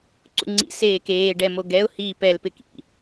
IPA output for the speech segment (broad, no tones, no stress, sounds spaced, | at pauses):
ǀ ṵ ŋ͡ǀ ḭ s eː k eː ɖ ɛ m o ɡ ɛ ʊ̯ h iː p ɛ l p ɪ k ḭ